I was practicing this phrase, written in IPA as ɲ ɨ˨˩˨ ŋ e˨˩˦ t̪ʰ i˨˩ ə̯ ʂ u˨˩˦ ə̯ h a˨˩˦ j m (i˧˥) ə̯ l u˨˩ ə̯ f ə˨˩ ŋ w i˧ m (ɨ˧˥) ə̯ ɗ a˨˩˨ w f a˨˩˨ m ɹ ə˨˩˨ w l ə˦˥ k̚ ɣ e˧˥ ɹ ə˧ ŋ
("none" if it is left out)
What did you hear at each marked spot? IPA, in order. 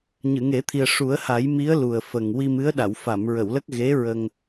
i˧˥, ɨ˧˥

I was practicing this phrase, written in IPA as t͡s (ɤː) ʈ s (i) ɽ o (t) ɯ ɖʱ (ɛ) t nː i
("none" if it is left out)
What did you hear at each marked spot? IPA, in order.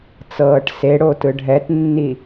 ɤː, e, t, ɛ

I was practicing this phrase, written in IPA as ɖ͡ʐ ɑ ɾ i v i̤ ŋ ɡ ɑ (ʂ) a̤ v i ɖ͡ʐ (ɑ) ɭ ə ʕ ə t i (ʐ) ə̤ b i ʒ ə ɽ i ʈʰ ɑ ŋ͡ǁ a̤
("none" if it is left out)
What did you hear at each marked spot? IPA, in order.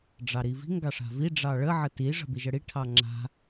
ʂ, ɑ, ʐ

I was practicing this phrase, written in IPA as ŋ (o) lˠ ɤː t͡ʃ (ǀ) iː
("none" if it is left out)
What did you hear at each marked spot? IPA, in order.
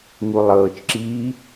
u, ǁ

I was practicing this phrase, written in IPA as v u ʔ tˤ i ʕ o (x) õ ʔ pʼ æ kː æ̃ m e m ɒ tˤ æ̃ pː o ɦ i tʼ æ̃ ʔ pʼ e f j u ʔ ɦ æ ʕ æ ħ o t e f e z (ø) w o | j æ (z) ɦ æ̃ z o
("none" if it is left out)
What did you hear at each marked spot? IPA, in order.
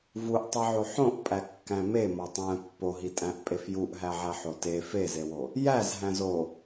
ħ, e, z

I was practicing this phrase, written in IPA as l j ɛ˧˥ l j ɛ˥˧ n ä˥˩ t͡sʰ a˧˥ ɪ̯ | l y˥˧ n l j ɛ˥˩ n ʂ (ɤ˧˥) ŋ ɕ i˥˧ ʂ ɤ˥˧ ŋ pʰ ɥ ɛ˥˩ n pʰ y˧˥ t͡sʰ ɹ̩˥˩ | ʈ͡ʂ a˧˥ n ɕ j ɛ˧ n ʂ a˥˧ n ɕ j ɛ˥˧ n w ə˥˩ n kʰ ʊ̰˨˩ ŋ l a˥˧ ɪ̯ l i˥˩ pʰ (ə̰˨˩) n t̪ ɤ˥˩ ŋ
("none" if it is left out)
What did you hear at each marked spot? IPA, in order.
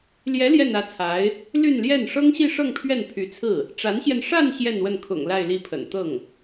ɤ˥, ə̰˨˩

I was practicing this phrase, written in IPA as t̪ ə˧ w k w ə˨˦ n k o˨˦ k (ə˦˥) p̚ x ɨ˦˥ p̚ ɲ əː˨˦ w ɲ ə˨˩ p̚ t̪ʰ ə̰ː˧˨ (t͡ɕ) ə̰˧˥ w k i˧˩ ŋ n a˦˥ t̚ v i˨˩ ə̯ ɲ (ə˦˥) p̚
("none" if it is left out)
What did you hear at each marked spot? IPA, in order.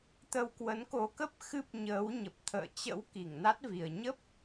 ə˦˥, t͡ɕ, ə˦˥

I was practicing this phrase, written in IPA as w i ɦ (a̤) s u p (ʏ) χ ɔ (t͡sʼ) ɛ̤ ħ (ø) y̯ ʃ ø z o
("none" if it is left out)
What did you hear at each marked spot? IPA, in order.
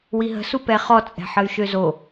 ə̤, ɛ, t͡sʼ, ə

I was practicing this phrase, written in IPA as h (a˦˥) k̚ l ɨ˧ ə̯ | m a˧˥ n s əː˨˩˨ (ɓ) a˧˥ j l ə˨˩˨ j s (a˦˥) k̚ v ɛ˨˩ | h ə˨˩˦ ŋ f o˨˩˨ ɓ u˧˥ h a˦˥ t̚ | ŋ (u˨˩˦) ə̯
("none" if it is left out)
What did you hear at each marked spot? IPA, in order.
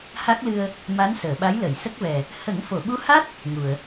a˦˥, ɓ, ə˦˥, u˨˩˨

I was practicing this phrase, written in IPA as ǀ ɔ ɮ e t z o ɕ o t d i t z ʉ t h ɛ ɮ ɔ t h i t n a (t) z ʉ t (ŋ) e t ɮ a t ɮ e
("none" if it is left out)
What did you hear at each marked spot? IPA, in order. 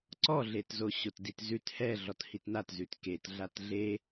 t, k

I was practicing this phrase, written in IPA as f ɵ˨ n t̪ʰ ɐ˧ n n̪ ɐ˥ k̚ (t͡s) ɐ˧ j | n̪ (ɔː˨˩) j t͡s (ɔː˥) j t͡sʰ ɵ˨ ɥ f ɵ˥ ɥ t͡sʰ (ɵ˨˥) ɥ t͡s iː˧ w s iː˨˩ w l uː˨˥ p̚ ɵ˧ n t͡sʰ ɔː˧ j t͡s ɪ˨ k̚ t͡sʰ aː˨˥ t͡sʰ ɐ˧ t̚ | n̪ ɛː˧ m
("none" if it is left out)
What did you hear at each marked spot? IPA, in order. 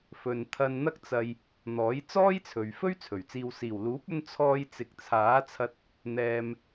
t͡s, ɔː˨˥, ɔː˥, ɵ˨˩

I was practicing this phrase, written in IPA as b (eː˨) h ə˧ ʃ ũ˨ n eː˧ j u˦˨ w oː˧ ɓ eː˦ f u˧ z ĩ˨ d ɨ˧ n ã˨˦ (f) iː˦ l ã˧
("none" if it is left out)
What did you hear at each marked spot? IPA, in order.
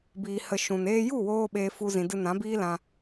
iː˨, b

